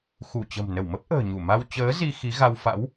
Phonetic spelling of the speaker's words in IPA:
x u˧˩ t͡ɕ ə̤˨˩ m n ə˧˩ w m ə˦˥ p̚ ʔ ə̤ː˨˩ ɲ u˧˩ m a˧ w t͡ɕ əː˨˦ z i˧ x i˨˦ ɣ a˧ w f a̰˧˥ w

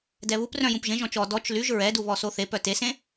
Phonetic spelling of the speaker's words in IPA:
d ɛ β u p r œ̃ j ũ p ʒ ẽ ʒ ɔ̃ t͡ʃ ɔ d ɔ t͡ʃ l y ʒ ɹ ɛ d u β ɔ s o θ e p œ t e s ẽ

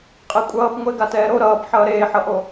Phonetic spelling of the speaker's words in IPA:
qʼ e kʷʼ ʌː p ŋʷ e ɡ a t ɛː ɾ o ɾ ʌː p ħ ʌː ɾ eː ħ ʌ ʔ o

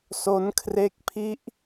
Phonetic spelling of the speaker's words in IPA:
s o˦˥ n kʰ r e˦˥ k̚ pʰ i˦˥ ʔ

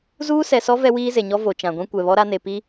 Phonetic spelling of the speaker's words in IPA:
z uː˦ s ɛ˨ s ɔ˦ v ɛ˦ w iː˦ z e˨ ɲ ɔ˦ v o˨ t͡ʃ ã˨ ɡʷ ĩ˦ kʷ ɛ˨ β ɔ˦ ɾ a˦ n e˨ p i˦

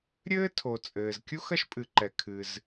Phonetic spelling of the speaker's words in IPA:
ɾʲ ɘː˥ tʰ o˩ t͡sʼ ɘː˩ z kʲ u˥ x ɐ˥ ʃ pʼ ɨ˩ ǃ ɛ˩ kʰ ɨ˩ z

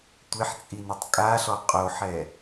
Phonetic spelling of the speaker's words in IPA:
tʷ ɪ ħ t͡sʼ i n ɪ tˤ kʼ a ɬ ɔ qʼ o ħ ɛ

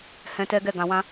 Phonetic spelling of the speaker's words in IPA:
h ɛ̃˧ t ɛ˦ ɡ ɛ˦˨ ɡ ã˨ w ã˧

